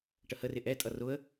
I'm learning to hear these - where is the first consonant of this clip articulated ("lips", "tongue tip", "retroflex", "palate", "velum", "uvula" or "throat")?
retroflex